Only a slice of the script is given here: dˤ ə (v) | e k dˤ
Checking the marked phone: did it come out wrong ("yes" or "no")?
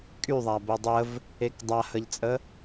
no